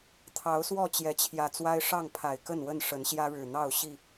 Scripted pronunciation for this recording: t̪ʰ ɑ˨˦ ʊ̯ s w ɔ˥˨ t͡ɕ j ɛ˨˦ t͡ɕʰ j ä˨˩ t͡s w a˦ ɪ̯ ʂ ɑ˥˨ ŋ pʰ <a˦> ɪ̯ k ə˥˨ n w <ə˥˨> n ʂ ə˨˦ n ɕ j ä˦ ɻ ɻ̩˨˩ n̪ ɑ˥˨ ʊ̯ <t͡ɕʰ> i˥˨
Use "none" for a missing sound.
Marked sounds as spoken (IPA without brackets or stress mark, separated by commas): a˨˩, ə˥˨, ɕ